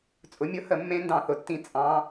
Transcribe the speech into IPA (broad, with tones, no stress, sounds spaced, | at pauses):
t͡sʼ ʊ˨˥ mʲ ʊ˦˥ h ə˨˩˦ mː ẽ˦˥ n d ɑ̃˦˨ θ ʊ˨ tː ĩ˧˥˧ t͡sʼ ɑ̃˦˥